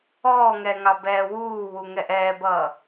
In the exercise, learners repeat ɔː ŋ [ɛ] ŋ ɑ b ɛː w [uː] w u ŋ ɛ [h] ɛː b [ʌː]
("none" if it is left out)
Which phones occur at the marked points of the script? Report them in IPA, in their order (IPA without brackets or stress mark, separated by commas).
ɛ, uː, ʔ, ʌː